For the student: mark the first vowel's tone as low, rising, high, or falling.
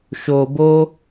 low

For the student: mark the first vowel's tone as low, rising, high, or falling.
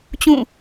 falling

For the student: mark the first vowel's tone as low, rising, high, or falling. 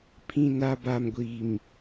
low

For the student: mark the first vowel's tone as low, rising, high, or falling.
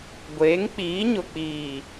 rising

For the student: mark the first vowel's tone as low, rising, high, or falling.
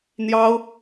high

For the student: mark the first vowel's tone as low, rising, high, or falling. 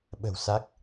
low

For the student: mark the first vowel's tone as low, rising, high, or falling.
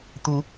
rising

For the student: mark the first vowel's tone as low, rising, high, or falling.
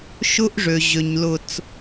high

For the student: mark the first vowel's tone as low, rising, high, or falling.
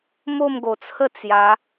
falling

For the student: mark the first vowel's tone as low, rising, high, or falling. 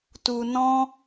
low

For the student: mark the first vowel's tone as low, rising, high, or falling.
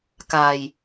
low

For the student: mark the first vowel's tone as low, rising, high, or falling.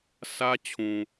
high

